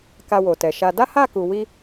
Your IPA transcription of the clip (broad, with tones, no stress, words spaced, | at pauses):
ka˧wo˨tɛ˨ʃa˧ da˦ha˦˨ku˨wi˧